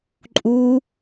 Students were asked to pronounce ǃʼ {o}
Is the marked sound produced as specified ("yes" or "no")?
no